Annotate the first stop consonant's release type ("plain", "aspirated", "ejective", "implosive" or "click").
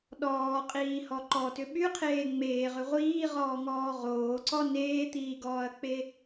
implosive